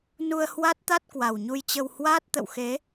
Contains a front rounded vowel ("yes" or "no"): no